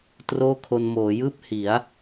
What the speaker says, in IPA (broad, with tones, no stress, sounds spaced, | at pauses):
t r oː˥˩ kʰ o˧ n m oː˩˦ j ɯː˥˩ p̚ h i˩˦ a̯